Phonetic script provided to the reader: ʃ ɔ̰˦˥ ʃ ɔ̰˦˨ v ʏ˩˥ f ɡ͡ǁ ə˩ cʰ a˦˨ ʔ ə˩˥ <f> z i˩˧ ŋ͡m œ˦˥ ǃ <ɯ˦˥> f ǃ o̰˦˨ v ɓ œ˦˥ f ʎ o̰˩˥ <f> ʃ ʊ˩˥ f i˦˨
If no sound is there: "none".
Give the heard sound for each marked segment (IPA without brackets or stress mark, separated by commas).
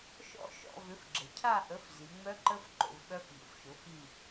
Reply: f, ə˦˥, f